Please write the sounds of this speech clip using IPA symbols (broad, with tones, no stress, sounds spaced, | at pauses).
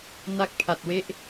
n a˦˥ k̚ pʰ a˨˩ t̚ w e˦˥ ʔ